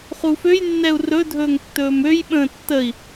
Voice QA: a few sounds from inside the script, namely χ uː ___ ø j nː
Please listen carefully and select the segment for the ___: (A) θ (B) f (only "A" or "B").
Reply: B